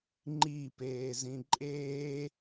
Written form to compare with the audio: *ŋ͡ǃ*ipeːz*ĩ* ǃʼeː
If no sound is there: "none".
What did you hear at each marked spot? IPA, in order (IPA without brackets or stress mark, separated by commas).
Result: ŋ͡ǃ, ĩ